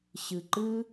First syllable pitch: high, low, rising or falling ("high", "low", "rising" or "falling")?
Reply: low